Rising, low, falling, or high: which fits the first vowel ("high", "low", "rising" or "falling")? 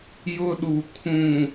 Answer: high